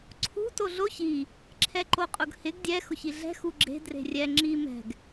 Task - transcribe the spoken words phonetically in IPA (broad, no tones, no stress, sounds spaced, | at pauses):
ǀʰ ṳ t o ɮ o ç i | ǁʰ ɛ ǃ o qʼ ʊ ɡ h ɪ ɡ dʲ ɛ x ʊ ç i ɮ ɛ̤ x u ɡ͡ǁ e̤ d r e̤ rʲ ɛ ŋ͡ǁ i m ɛ̤ ɡ